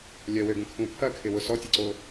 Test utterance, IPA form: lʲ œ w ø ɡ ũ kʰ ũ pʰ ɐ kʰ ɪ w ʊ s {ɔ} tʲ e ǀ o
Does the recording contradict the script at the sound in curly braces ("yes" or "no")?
no